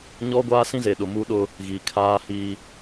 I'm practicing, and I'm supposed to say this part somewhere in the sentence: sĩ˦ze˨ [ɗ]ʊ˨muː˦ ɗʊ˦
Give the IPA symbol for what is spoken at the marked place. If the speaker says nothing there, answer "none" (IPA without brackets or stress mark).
ɗ